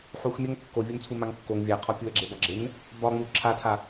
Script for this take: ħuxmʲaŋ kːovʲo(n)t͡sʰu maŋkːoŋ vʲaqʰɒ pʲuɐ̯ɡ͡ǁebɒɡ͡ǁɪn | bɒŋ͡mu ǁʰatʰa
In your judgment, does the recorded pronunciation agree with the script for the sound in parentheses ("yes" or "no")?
yes